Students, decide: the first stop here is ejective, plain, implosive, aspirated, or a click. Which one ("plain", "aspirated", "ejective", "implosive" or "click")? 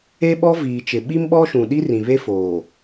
implosive